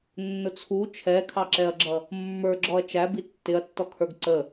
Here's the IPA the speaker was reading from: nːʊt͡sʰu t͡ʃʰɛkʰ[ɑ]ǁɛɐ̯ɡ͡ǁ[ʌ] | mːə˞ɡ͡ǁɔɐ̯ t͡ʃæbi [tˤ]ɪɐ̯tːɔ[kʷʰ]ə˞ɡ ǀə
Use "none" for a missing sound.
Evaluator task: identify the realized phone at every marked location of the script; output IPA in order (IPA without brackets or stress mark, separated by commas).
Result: ɑ, ʌ, tː, kʰ